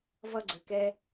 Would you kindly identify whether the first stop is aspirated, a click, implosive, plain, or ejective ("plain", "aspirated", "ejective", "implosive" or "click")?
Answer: click